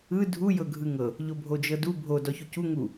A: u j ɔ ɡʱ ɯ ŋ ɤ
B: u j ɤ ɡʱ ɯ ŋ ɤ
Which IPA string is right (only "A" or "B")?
B